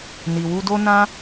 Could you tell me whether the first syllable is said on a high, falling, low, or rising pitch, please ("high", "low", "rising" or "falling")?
low